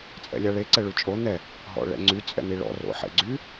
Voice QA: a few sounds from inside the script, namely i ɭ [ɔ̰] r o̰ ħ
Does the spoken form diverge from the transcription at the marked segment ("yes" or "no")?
no